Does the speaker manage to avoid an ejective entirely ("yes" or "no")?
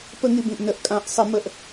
no